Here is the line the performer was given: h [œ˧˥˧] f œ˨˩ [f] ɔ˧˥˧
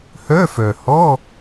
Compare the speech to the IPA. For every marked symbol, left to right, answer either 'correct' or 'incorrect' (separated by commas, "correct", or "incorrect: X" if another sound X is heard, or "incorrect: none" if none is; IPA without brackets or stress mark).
correct, incorrect: h